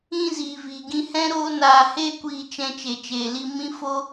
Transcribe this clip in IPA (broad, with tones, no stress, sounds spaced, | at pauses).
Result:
ĩ˧ z iː˨ v iː˨ ɡ ĩ˧ h ɛ̃˦ ɾ oː˦ n aː˧ h eː˦ kʷ iː˧ t͡ʃ ɛ̃˧ t͡ʃ e˧ t͡ʃ eː˧ l i˦ m ĩ˦ f o˦